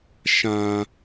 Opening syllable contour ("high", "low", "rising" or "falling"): low